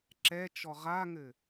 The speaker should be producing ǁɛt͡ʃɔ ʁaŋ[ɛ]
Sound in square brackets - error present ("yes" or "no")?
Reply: yes